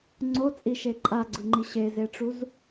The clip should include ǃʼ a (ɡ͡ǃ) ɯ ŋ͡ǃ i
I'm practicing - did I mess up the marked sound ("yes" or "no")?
yes